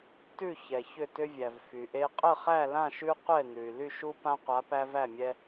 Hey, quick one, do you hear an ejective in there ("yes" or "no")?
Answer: yes